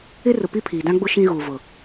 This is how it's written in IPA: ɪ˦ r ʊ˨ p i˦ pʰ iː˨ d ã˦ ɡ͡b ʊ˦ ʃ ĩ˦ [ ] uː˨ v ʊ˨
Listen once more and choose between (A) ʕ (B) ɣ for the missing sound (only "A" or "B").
B